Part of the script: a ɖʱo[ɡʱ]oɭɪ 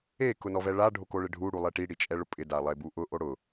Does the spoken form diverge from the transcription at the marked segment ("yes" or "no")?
yes